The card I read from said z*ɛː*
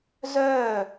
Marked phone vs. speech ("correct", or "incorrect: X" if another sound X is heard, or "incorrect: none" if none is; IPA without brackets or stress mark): incorrect: œː